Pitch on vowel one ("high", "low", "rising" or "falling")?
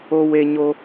high